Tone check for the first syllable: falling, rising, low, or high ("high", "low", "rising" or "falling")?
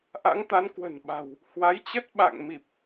rising